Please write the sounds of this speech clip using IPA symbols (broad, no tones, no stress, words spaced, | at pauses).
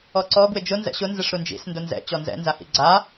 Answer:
ɔǀɔ ɡwɪd͡ʒʊ nzɛ̰ɕʊ nzɪʂɾund͡ʒḭs ndʊnzɛ̰ t͡ɕɔnzɛ̰ nzahḭɡ͡ǀa